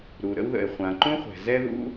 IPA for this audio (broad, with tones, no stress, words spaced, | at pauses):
ɾu˩ɾə̰˥wðə̰˩e̯ χʷã˩ǃũ˥χʷɛ̤˩ zɛ˥ðṵ˥